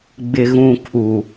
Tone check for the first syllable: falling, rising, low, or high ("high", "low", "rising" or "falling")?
low